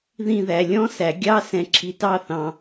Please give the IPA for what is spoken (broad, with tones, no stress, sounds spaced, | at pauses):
ð ĩ˥˧ ð æ˧ lʲ ɔ̃˥ s æ˩˧ ɡʲ ɑ˥ s ɛ̃˧ ǁʰ i˧ t ɑ˥˧ θ ɑ̃˧